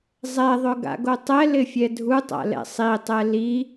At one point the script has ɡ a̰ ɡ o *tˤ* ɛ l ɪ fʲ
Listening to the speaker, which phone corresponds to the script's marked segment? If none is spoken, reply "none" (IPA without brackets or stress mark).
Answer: tˤ